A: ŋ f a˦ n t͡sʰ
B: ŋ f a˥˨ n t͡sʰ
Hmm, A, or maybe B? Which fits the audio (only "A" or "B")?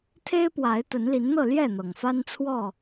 A